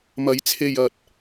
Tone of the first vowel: rising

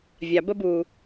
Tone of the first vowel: low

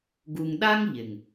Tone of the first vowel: low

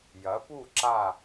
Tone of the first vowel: rising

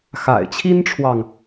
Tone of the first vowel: low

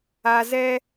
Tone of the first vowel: low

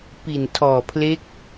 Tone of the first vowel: low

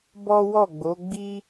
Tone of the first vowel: high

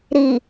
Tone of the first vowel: low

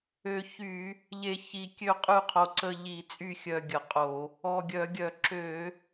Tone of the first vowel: low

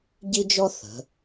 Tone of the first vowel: high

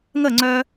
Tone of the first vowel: falling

